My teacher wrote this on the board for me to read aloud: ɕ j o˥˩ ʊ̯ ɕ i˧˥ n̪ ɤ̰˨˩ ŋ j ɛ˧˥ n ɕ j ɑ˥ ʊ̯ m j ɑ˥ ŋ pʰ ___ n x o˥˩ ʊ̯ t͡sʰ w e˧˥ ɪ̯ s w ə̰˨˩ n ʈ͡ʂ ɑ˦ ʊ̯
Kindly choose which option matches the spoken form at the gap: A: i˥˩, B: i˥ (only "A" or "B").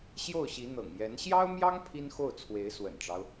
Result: B